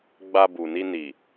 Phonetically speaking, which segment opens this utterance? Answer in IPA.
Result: ɡ͡b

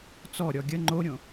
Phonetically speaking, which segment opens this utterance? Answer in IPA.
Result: t͡s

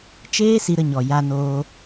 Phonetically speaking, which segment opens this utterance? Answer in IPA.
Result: t͡ʃ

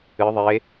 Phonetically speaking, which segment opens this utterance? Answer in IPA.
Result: ɨ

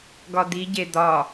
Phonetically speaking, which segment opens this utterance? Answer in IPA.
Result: ɡ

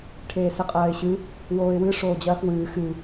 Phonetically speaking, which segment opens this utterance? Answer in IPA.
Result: ʈʰ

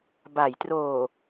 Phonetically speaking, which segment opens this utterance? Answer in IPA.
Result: b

